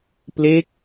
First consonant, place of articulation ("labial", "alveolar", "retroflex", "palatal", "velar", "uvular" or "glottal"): labial